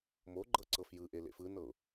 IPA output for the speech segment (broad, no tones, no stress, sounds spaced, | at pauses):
m o ɡ͡ǃ ɤ ǀ ɤ f j ɯ ʔ e l ḛ f ɯ n ɤ ʊ̯